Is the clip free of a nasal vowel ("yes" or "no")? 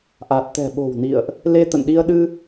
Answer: yes